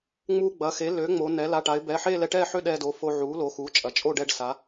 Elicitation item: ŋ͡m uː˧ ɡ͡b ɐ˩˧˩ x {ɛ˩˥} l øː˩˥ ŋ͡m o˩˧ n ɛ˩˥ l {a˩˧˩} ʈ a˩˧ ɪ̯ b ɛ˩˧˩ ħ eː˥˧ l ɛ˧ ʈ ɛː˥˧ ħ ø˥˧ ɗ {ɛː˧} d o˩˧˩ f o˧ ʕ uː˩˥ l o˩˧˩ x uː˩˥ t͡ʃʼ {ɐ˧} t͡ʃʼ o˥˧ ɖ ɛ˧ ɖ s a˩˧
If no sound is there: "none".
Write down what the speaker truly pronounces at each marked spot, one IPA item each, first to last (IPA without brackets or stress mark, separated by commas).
e˩˥, a˩˧˩, ɛː˧, ɐ˩˧˩